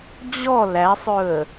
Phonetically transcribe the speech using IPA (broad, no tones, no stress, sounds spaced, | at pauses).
d͡ʑ ɔ l æ sˤ ɵ ə̯